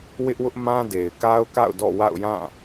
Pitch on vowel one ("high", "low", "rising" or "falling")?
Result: high